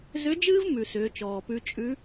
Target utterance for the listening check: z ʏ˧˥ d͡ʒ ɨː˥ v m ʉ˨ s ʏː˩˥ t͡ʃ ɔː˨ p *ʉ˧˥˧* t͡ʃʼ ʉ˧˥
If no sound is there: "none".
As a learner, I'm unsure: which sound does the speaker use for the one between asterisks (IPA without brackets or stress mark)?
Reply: ʉ˥